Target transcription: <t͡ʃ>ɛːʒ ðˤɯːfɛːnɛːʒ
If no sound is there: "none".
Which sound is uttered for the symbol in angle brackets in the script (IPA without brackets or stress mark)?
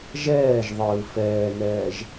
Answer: ʒ